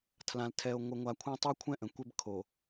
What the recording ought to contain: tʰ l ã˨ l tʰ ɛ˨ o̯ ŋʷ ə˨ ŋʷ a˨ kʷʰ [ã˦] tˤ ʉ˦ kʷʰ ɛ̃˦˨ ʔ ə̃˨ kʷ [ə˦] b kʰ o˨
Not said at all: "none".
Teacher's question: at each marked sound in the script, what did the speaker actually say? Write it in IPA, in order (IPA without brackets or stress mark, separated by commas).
ã˦, ɛ˦